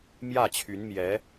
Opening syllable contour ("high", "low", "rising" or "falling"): falling